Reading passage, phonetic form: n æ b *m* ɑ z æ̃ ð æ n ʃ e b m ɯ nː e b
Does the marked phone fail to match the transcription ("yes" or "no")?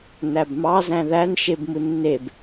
no